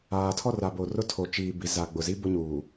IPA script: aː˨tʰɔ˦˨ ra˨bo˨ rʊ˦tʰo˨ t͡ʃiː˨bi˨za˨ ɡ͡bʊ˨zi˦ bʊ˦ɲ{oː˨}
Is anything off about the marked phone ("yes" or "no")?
yes